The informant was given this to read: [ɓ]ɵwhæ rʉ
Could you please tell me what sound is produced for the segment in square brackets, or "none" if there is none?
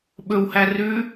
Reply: ɓ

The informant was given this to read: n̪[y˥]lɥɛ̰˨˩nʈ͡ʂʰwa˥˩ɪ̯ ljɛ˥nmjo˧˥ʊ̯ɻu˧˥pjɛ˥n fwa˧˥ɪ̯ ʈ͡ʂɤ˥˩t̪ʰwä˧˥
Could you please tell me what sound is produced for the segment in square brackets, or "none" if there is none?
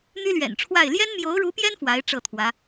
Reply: y˥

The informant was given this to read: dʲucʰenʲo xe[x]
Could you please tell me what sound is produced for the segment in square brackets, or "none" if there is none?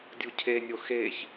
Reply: ç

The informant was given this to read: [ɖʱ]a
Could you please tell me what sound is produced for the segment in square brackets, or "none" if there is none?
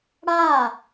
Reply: ɽ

